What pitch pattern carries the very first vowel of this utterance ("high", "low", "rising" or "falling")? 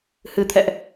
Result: low